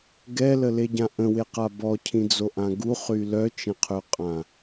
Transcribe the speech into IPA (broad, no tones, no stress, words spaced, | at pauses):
ɡɛləleɟã ʔə̃weqa bɔcʰĩd͡zoʔã ɡuχy lœt͡ʃə̃qʰøqʼã